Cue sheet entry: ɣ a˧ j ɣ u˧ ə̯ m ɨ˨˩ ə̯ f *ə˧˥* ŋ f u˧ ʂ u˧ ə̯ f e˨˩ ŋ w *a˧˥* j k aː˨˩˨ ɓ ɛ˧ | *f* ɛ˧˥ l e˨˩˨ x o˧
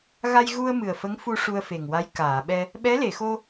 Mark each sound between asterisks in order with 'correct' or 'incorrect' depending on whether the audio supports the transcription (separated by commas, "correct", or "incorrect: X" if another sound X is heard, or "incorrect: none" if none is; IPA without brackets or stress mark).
correct, correct, incorrect: ɓ